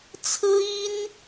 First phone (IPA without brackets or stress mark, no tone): t͡sʰ